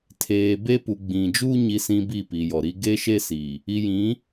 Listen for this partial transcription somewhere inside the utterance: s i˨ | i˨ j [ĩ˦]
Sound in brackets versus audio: incorrect: ĩ˨˦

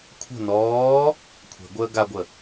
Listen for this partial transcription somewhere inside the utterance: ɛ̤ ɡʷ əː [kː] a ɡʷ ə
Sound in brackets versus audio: incorrect: ɡ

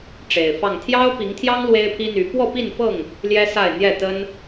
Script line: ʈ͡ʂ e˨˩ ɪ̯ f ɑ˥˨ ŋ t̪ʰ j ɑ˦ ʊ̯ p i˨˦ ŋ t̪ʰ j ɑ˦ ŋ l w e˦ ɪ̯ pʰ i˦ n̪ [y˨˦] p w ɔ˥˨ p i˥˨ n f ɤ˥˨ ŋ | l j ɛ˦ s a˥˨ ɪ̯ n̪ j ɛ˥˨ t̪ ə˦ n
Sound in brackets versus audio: correct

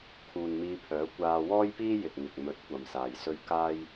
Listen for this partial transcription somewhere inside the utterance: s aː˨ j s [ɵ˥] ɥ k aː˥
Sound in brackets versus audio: correct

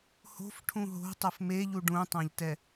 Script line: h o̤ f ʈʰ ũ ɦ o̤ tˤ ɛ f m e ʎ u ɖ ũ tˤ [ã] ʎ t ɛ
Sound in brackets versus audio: correct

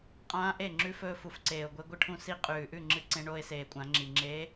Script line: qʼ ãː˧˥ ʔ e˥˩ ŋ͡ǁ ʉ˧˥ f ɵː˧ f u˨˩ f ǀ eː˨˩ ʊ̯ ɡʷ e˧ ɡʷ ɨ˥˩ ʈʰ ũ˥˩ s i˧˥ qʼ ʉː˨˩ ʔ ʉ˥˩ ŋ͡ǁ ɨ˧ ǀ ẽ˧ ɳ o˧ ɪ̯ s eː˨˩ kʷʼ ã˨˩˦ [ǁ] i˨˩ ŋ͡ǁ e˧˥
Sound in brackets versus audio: incorrect: ŋ͡ǁ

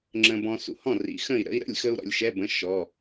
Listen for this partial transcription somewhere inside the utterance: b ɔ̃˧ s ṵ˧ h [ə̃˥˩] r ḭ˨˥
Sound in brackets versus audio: incorrect: ɔ̃˥˩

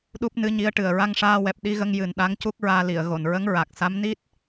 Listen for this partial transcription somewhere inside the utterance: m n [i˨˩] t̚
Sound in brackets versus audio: incorrect: i˦˥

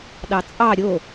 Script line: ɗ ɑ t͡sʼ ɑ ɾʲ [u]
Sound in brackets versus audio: incorrect: o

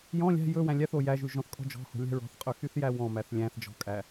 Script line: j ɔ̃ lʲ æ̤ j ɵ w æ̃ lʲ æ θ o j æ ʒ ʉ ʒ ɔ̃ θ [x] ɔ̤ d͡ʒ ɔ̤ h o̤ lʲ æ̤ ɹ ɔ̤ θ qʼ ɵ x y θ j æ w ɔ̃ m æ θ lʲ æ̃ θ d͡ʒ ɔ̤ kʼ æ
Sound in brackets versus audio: incorrect: kʼ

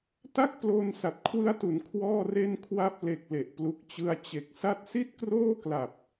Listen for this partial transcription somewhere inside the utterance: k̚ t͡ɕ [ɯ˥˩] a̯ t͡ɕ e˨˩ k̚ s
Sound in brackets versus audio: incorrect: ɯ˧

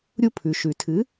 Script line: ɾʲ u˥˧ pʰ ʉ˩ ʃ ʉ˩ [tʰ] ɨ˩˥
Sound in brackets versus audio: correct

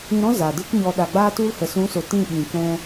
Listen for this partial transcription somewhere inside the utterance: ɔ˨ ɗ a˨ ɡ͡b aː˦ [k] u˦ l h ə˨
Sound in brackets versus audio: incorrect: t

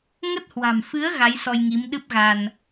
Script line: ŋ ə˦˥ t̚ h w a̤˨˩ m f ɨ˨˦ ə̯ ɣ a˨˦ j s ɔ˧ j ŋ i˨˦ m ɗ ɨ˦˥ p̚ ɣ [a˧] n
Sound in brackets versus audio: correct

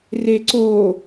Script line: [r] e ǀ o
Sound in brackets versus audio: correct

